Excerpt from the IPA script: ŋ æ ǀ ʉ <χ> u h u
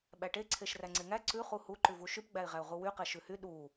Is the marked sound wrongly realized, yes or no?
no